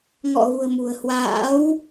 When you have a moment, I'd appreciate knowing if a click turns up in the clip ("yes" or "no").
no